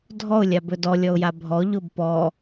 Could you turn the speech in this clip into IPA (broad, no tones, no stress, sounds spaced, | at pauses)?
dʱ ɔ ʊ̯ lʲ a b ɵ d ɔ lʲ ɔ ʊ̯ j a bʱ ɔ ʎ ʊ b p ɔ